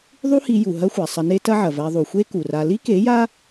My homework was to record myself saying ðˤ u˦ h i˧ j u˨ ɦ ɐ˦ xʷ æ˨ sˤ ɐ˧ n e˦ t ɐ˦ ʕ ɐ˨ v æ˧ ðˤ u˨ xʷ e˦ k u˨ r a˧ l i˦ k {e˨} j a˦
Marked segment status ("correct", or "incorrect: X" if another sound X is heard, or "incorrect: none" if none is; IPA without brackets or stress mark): incorrect: e˨˦